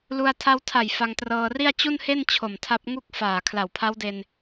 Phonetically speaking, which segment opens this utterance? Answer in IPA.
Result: l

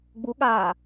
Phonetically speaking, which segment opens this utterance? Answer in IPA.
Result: ɡ͡b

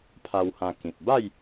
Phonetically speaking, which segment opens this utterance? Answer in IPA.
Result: pʰ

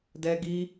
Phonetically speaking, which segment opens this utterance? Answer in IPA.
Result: d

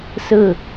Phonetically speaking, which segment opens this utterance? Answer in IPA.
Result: s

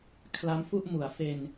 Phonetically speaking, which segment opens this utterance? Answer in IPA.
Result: kʰ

